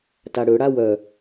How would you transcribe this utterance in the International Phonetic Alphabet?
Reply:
taɽøɽa wœ

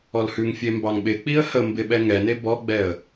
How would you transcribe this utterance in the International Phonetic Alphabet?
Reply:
ɔlhʉŋfʲe mbɑŋɓɪk͡piə̯ hə mbɪɓɛ ŋɛne bɔɡ͡bɛə̯

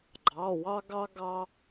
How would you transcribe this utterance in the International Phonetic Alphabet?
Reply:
ɡ͡ǃɑ˩˧˩wɑ˦ɡɑ˦ɡɑ˦

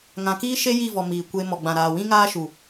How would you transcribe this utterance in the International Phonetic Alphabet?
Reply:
ŋã˨kiː˦ʃe˦ ji˦˨vɔ˨ miː˨kʷe˦ mɔ˨ɡ͡bã˨ɾaː˨ wĩ˦ŋaː˦ʃu˨

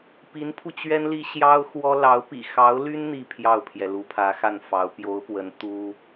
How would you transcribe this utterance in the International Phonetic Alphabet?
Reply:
pi˧˥npʰu˧t͡ɕɥɛ˥nli˥ ɕjɑ˥ʊ̯xwɔ˥ lɑ˧˥ʊ̯ pḭ˨˩xɑ˧˥ʊ̯ly˥n n̪i˥˧pʰjɑ˥˩ʊ̯pʰjɛ˩lu˧˥ pʰä˧˥xa˥˩nfɑ˧˥ʊ̯ pjo˧˥ʊ̯pwə˧˥n t̪u˥

